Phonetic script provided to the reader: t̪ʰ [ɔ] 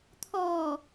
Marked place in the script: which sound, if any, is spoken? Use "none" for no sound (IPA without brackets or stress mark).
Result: ɔ